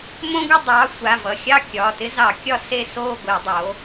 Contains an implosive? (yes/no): no